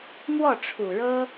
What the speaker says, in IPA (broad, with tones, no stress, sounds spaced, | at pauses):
m w ɔ˥˩ ʈ͡ʂʰ u˨˩ ɻ ɤ˥